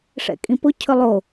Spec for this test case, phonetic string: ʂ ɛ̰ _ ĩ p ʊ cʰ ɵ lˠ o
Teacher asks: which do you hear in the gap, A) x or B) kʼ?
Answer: B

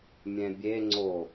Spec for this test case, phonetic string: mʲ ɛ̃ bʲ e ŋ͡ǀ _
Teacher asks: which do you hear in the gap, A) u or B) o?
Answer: B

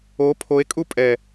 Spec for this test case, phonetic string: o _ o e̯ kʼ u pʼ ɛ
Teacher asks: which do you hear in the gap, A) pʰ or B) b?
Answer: A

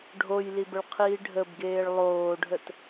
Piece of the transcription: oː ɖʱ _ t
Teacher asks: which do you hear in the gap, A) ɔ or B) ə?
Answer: B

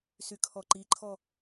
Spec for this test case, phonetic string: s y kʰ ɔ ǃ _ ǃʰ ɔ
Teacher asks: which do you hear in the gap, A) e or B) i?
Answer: B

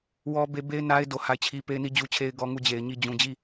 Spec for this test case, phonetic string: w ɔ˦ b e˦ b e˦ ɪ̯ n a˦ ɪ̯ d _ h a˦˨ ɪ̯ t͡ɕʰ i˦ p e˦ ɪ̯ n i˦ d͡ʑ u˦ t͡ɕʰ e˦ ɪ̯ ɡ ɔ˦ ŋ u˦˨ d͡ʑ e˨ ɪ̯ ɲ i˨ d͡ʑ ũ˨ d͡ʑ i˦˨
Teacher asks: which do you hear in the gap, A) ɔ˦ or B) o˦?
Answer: B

